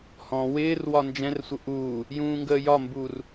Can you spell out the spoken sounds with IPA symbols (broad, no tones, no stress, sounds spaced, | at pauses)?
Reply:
h ɔ̃ w ɪː r w ɒ n d͡ʒ ɛ̃ r sʷ ə ʔ uː | j ũː ŋ ɡ əː j ɒ m b uː r